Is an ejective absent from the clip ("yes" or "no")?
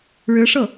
yes